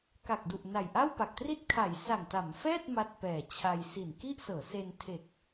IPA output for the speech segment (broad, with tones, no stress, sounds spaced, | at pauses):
k a˨˩ k̚ d u˨˩ ʔ n a˨˩ j ʔ a˥˩ w p a˨˩ k̚ t r i˥˩ t̚ kʰ a˩˦ j s a˨˩ ŋ t a˩˦ m f ɛː˥˩ t̚ m a˦˥ t̚ p ɛː˨˩ t͡ɕʰ a˧ j s i˨˩ n k i˥˩ ʔ s ɤː˩˦ s e˧ n tʰ e˨˩ k̚